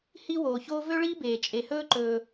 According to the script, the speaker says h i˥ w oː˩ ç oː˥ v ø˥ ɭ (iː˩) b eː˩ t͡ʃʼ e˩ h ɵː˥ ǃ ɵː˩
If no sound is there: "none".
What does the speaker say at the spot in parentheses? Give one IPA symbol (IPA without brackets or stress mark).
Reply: iː˥